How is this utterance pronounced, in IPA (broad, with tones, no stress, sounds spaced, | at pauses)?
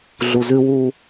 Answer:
ɮ u˨ z ʉ˦ w u˦